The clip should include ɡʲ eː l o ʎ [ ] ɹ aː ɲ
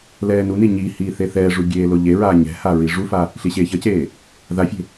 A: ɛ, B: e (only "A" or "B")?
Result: B